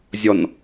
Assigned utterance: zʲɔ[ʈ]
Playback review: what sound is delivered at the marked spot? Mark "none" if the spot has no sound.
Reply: n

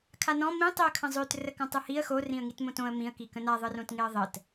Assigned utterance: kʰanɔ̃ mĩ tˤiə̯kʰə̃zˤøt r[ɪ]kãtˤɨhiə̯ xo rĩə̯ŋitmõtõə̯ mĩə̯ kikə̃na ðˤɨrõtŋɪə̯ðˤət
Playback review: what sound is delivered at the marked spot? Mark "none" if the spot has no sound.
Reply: ə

